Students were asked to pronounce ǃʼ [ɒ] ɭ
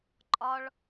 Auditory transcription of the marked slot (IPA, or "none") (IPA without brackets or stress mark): ɒ